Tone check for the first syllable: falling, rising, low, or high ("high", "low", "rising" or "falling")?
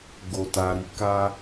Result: low